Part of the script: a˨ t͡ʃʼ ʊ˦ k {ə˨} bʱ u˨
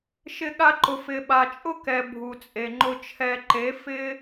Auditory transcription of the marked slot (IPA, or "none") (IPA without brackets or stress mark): ɛ˨